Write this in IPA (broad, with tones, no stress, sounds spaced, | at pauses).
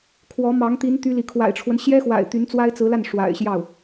kʰ w ɔ˧˥ m ɑ˧˥ ŋ t̪ i˧˥ n t̪ y˥ l i˨ kʰ w a̰˨˩ ɪ̯ ʈ͡ʂʰ w ə˦ n ɕ j ɛ˥ x w a̰˨˩ ɪ̯ t̪ y˧˥ n t͡s w a˥ ɪ̯ t͡s ɹ̩˧˥ l a˥˩ n ʂ w a̰˨˩ ɪ̯ ɕ j ɑ˥˩ ʊ̯